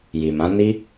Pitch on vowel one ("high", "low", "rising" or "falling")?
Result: low